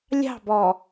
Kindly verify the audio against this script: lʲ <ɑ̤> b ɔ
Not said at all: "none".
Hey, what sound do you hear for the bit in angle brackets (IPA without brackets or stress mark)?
ɑ̤